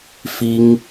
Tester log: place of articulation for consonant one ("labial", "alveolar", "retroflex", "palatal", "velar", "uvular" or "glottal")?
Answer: labial